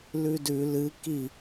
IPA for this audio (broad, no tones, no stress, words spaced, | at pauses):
lʉdʉ lɨ ki